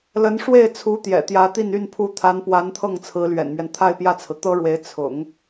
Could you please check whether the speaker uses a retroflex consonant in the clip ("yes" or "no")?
yes